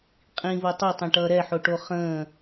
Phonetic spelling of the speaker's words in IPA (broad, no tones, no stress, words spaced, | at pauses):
qʼĩvo tˤʌtˤɛ̃ʈʌː ɾɛħoʈo χə̃ː